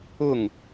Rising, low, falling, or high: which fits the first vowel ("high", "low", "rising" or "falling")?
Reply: falling